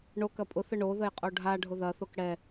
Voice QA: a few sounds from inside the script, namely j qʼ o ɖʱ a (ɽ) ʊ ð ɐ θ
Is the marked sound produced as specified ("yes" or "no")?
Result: no